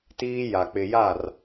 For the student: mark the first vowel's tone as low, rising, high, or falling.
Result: high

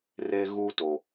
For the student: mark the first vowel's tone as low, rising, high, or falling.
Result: high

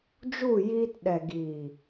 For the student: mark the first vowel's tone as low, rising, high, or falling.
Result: falling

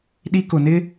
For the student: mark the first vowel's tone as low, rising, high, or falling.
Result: high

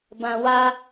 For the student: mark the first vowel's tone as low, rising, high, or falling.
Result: low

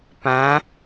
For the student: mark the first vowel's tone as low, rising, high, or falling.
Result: rising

